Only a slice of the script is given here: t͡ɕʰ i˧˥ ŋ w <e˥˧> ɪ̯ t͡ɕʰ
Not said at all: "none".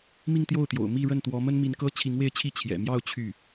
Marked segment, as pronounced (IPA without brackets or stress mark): e˥˧